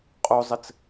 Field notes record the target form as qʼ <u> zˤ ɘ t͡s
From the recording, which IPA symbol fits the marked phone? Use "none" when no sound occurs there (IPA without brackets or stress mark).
u